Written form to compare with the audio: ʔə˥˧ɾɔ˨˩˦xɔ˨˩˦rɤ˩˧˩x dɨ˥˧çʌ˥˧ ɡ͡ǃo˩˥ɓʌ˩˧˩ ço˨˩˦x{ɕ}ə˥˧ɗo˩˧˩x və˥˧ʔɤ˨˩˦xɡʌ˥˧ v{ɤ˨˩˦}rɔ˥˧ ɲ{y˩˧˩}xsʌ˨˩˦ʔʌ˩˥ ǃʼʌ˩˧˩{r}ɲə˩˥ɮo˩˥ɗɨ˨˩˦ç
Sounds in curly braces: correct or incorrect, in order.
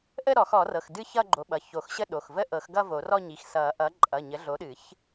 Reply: correct, incorrect, incorrect, incorrect

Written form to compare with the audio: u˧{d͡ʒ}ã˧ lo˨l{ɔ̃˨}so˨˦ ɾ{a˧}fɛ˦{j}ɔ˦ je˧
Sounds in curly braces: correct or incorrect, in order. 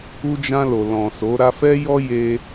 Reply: correct, correct, correct, correct

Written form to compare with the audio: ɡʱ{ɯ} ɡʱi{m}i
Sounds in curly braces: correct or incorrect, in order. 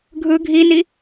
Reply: correct, incorrect

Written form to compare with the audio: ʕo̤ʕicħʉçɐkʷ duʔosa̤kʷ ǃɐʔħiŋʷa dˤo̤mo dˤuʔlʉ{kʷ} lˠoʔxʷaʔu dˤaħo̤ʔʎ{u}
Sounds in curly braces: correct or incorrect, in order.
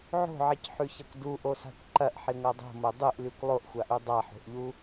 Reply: correct, correct

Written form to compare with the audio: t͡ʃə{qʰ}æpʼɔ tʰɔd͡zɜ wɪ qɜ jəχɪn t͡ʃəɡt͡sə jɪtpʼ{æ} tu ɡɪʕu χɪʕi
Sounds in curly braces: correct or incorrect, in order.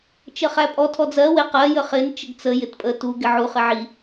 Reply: incorrect, incorrect

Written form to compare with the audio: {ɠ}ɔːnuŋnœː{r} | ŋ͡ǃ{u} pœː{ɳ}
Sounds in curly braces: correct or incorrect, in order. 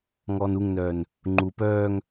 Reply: incorrect, incorrect, correct, incorrect

